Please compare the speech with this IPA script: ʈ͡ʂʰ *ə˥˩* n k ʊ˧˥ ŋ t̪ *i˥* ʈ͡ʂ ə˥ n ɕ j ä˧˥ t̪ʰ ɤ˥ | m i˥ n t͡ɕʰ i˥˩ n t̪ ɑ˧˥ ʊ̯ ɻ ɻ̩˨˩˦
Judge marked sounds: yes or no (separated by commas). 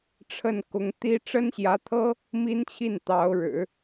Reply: yes, yes